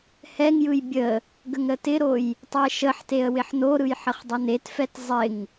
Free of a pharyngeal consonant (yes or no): no